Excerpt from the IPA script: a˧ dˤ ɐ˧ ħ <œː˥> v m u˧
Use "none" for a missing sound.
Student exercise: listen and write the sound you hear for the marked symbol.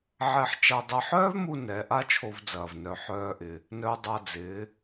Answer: œː˥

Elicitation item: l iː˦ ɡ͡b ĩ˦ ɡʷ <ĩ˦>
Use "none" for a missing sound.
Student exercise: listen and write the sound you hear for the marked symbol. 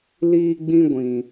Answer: ĩ˨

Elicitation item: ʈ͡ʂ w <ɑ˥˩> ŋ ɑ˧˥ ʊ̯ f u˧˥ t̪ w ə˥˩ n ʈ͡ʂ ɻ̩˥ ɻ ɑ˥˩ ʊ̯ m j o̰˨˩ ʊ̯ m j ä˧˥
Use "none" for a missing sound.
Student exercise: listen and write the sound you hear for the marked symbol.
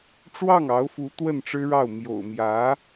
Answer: ɑ˥˩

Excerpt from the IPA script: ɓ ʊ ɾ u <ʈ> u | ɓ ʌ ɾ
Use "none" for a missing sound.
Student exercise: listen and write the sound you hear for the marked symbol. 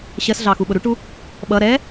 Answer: ʈ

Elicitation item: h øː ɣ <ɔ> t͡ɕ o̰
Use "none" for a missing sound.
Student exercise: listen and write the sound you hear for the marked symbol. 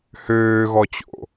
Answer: ɔ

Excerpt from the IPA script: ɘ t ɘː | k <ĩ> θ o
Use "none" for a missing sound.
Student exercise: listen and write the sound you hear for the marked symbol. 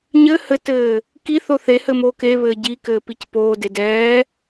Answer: i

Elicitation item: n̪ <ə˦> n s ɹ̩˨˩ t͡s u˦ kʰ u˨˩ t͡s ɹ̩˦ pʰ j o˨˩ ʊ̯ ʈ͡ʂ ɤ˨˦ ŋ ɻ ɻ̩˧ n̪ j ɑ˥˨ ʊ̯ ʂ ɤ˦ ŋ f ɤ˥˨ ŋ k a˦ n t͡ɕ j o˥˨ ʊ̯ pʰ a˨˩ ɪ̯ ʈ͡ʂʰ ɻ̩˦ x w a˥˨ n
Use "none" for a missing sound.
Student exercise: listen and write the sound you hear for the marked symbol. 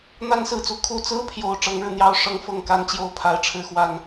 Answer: a˦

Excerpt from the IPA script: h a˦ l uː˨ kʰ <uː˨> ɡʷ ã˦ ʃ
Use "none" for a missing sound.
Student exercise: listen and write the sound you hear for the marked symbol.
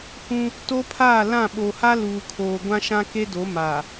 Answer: oː˨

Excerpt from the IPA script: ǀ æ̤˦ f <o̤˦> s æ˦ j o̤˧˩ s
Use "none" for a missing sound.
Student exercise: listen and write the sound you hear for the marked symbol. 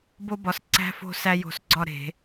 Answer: o̤˦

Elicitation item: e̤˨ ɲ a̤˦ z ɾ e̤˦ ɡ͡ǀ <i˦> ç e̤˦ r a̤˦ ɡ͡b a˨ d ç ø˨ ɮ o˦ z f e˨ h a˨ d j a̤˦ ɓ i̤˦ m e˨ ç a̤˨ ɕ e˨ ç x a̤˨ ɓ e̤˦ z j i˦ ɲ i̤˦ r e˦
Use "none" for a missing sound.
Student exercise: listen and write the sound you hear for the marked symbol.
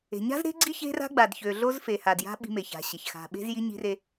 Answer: i˦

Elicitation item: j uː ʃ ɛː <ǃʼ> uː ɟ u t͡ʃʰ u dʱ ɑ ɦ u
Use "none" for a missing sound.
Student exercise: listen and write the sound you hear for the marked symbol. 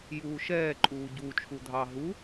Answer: ǃʼ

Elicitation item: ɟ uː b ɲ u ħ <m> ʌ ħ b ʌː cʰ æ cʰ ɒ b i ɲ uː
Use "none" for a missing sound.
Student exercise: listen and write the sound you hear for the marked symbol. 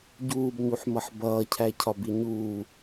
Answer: m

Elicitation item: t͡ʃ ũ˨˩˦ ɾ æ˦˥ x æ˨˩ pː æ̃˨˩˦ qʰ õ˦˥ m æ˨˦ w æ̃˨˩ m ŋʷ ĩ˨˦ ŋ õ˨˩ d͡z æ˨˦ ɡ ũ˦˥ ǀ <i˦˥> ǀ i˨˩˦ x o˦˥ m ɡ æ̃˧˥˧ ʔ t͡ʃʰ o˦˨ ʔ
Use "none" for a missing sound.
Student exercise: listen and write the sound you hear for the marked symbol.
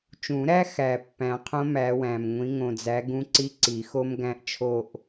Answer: i˦˥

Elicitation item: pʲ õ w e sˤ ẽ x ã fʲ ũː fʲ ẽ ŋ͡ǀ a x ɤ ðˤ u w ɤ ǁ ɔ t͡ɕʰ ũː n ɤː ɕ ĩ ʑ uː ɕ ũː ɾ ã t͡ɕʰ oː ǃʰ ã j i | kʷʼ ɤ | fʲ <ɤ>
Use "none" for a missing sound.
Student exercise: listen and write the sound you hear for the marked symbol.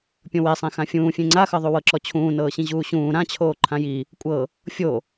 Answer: o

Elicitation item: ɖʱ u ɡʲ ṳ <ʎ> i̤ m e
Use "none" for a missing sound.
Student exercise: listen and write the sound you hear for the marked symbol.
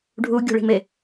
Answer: ɭ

